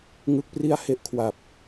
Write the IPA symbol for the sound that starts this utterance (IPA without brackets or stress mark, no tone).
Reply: ŋ